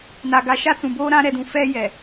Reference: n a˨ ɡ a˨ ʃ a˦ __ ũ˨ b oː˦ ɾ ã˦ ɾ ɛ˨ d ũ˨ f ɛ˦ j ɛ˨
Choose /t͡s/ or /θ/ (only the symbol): t͡s